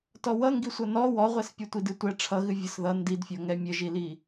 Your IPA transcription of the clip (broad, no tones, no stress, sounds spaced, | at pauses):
t ɔ w ʌ ŋ ɡ i sʷ ʌ n ɔ w ɔ ʁʷ ɛ s pʲ ɛ tʷ i d ɨ tʷ ɛ ʈ͡ʂʰ ʌ ɣ ɨ vʲ ʌ s ð ʌ n d i d fʲ ɔ ŋ ɛ mʲ ə ʒ i l i